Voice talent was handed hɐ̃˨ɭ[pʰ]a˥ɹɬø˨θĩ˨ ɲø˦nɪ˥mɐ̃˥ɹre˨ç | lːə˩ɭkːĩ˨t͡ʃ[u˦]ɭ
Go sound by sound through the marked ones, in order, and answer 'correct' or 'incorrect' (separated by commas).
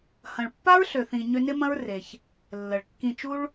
incorrect, correct